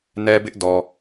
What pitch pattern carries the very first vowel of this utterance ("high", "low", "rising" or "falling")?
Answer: high